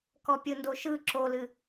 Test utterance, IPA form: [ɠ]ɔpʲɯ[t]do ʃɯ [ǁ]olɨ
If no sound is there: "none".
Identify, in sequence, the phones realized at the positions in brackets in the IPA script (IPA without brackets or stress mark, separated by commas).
k, n, ǁ